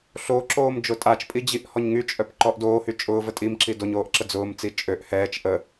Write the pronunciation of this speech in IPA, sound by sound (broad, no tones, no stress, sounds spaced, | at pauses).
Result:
ɬ o ǁ oː m d͡ʒ ʊ tʼ a t͡ʃ pʼ i d͡ʑ i ʔ h ɔ ɲ ŋ y t͡ʃʼ œ p ǃ ɔ ʔ d oː h y t͡ʃʼ ʊː v ə tʼ i m ǁ i d o ɲ oː ʔ ǁ ə d͡z ʊː m t͡s i t͡ʃʼ ø ʔ h ɛː t͡ʃ ʔ ə